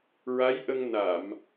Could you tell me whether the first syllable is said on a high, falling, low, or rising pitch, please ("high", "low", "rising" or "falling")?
rising